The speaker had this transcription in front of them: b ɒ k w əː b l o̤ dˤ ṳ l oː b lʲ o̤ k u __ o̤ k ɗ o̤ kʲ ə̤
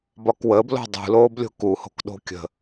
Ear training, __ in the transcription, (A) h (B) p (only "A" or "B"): A